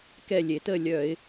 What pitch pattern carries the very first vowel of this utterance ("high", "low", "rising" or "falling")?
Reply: falling